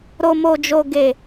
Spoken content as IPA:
ɾ o˨ m o˨ d͡ʒ o˨ ɡ e˨

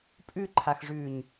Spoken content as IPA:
pʼ ʉ ǃʰ a x ʐ ʉː ɲ

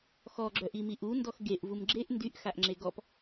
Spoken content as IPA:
x ɔ ɡ͡ǁ œ ʔ i m i ʔ u n d ɔ x ɡ e ʔ v u m ɡ͡ǁ e ʔ n d y ʔ x a ʔ ŋ͡ǁ e ɡ ɔ p

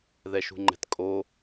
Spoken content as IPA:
ð ɛ ʃ ṳ ŋ͡ǃ ɛ̤ t kʼ o

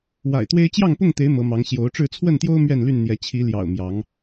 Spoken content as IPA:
w a̰˨˩ ɪ̯ t̪ w e˦ ɪ̯ t͡ɕ j ɑ˥˨ ŋ p ʊ˥˨ ŋ t̪ e˨˦ ɪ̯ m ɤ˨˦ m ɑ˨˦ ŋ ɕ j o˨˦ ʊ̯ ʈ͡ʂ ɻ̩˥˨ t͡sʰ w ə˥˨ n t̪ j o˦ ʊ̯ m ɥ ɛ˥˨ n l y˥˨ n n̪ j ɛ˨˦ t͡ɕʰ i˨˦ l j ɑ̰˨˩ ʊ̯ m j ɑ˨˦ ŋ

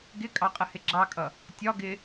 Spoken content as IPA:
ɡ ɪ kʼ ɑ qʼ ə h ɪ ɡ͡ǁ ɑ kʼ ʌ | tʲ ɒ ɡ ɪ

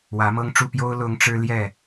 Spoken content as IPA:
w ä˨˦ m ɤ˦ ŋ ʈ͡ʂ u˥˨ p j o˦ ʊ̯ l ʊ˦ ŋ ʈ͡ʂ ɻ̩˦ l j ɛ˥˨

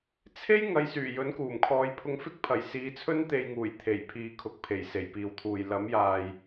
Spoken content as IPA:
t͡sʰ e˥ j ŋ ɐ˨˧ j s yː˨˩ j ɵ˨˥ n k uː˨˩ m kʰ ɔː˨˧ j pʰ ʊ˧ ŋ f ɪ˥ k̚ pʰ ɐ˨˩ j s iː˨˧ t͡sʰ ɵ˥ n t̪ e˧ j ŋ uː˨˩ j t̪ʰ e˨˩ j pʰ iː˨ kʰ ʊ˨ k̚ pʰ e˨˩ j s e˨˩ j p iː˨ w t̪ʰ uː˨ j l ɐ˨˥ m j aː˨ j

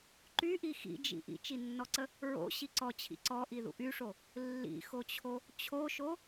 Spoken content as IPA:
ǃ y ʔ i x ḭ d͡ʒ ḭ ʔ ḭ t͡ʃ i nː ɔ ǀ ə | ɹ o̰ ɕ i ǀ ɔ t͡ɕʰ ḭ ǀ ɔ ʔ i ð ṵ ʔ y ʂ o | lː ḭ x o t͡ɕʰ o | t͡ɕʰ o ʃ o

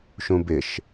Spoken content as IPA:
ʃ ũ b ɪ ʃ

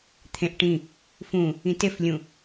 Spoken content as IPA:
t̪ʰ ẽ ʔ ʈ ĩ | f ũ | ĩ t e f lʲ ũ

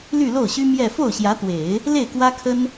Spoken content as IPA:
l y˥˧ l o˥˩ ʊ̯ ɕ y˥ m j ɛ˥˧ f o˥˩ ʊ̯ ɕ j ä˧˥ t̪ w e˨˩˦ ɪ̯ | l e˥˩ ɪ̯ k w ä˥ kʰ ə˥ n

